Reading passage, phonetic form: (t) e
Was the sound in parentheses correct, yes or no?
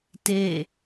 yes